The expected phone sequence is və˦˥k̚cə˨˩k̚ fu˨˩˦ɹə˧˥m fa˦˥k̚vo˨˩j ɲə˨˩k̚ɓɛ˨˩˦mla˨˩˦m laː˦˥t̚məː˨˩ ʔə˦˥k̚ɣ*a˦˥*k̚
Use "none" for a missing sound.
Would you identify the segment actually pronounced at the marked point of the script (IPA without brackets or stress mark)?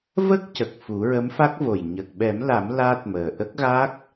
a˦˥